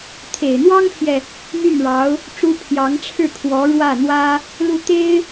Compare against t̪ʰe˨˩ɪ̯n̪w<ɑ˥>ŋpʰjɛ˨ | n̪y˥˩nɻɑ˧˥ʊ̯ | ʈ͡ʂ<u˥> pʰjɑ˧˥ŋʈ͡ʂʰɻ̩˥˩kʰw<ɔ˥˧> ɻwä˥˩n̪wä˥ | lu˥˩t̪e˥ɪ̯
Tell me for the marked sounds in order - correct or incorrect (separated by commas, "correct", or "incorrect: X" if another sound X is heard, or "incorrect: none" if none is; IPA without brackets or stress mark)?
correct, correct, incorrect: ɔ˧˥